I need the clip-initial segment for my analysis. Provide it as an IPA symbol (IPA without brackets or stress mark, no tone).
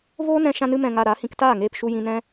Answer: v